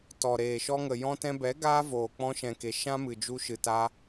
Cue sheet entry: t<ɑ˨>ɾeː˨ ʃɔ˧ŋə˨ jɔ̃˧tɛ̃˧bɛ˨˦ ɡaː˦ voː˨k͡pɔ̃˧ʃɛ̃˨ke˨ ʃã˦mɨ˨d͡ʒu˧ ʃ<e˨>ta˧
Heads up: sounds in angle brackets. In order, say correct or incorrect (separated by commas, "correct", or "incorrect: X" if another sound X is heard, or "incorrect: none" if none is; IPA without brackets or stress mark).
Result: incorrect: ɔ˨, incorrect: ɨ˨